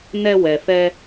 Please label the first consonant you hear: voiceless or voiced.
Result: voiced